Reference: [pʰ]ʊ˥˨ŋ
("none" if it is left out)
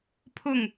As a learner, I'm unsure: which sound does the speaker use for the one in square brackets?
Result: pʰ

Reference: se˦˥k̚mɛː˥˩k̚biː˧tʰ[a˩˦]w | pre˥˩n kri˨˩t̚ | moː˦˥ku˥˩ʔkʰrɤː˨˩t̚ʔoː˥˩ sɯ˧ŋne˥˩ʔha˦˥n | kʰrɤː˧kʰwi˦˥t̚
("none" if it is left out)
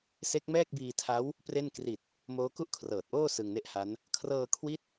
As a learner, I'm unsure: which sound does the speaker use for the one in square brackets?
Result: a˦˥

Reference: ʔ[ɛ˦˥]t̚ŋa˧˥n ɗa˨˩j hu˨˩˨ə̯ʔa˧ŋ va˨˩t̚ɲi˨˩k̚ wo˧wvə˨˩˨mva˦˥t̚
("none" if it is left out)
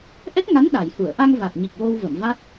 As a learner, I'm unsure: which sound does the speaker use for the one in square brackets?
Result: ɛ˦˥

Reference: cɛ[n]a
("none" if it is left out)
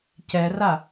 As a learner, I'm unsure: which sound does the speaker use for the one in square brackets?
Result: r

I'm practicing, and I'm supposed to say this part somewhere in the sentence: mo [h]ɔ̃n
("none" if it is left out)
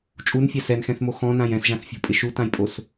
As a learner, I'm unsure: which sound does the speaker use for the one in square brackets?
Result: x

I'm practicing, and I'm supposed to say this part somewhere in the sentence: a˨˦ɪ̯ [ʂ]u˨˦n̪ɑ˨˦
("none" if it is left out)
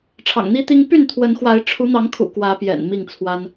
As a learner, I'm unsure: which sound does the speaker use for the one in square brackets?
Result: ʈ͡ʂʰ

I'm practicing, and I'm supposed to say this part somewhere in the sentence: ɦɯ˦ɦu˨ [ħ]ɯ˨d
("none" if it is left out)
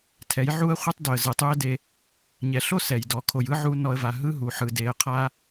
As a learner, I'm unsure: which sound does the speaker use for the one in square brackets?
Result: ħ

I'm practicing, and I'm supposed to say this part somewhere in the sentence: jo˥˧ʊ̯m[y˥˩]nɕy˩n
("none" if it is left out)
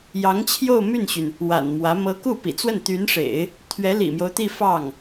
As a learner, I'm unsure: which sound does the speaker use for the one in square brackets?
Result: y˥˩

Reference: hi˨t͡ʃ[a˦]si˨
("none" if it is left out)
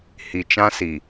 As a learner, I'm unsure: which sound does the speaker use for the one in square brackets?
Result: ã˦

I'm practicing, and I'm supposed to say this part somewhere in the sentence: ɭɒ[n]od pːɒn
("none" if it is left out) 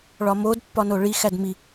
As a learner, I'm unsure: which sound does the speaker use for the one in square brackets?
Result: m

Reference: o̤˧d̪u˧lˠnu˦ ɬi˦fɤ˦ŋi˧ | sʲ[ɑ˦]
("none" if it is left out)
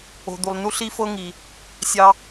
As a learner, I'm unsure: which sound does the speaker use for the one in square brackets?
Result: ɑ˦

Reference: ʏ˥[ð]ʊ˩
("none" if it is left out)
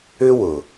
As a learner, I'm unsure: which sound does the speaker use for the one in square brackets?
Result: w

